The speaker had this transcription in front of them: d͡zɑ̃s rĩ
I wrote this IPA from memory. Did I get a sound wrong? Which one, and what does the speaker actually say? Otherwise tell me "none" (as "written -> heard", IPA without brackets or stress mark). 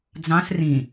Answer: none